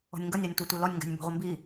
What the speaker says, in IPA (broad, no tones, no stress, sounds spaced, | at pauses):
ɔ̤ nʲ ŋ ɡ ʌ nʲ ɑ nʲ tʷ ɪ tʷ ɛ l ɔ nʲ ŋ ɡ æ̤ nʲ m b ɔ̤ ʁʷ ə m b i